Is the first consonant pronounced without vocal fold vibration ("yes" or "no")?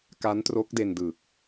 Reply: yes